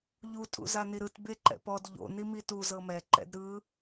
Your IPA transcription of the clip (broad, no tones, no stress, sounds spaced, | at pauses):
ʎ u tʼ ṵ z a n i ɾ ɯ t b e ǃ ɛ̰ p ɔ d ʎ o̰ n i m i t u z ɤ m ɛ ǃ ɛ̰ d ɾ ɯ